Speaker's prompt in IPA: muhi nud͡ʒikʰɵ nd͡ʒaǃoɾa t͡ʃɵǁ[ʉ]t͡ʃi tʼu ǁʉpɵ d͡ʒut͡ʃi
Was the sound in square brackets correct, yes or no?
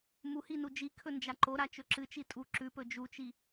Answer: no